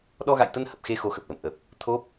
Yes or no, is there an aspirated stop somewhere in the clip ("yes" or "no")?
yes